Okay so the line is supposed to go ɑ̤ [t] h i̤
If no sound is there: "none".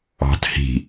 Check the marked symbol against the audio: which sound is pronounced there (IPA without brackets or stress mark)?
t